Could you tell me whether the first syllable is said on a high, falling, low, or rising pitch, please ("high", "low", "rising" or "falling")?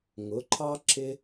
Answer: rising